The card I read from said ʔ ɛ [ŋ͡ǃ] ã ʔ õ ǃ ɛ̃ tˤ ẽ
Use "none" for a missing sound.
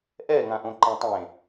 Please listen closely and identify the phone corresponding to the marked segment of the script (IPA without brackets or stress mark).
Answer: ŋ